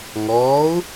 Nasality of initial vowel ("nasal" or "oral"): oral